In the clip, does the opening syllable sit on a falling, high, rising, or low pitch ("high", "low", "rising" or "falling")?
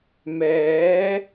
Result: rising